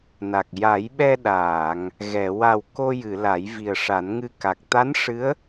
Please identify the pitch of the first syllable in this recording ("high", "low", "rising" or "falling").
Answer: low